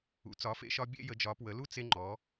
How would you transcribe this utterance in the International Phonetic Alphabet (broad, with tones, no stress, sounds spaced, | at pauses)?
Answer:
ṵ˩˧ t͡s ɒ˩˧ f ḛ˧ ʃ ɒ˧ bʲ ḛ˥˧ j ə˩˧ d͡ʒ ɒ˩˧ p w ə˩˧ l u˥˧ t͡s e˧ ŋ͡ǃ ɔ˩˧